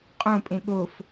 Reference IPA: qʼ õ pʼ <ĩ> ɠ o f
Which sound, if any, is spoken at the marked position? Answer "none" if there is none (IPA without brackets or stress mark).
ẽ